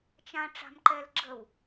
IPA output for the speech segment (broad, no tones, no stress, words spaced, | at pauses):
t͡ʃã ʈ͡ʂa̤mǃɛl ɡ͡ǁəw